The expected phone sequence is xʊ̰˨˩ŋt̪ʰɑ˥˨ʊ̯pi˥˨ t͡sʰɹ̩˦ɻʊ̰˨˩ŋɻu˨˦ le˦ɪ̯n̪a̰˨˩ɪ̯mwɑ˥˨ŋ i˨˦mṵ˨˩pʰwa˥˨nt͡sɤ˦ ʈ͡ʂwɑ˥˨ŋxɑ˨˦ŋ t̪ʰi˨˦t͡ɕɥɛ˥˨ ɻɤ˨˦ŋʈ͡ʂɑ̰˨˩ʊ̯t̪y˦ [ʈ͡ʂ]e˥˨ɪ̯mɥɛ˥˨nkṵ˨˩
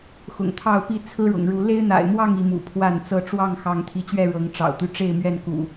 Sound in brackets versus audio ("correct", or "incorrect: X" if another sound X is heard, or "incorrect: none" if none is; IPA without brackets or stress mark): correct